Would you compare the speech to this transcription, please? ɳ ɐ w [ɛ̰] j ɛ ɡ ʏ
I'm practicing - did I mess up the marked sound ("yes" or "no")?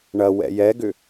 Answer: no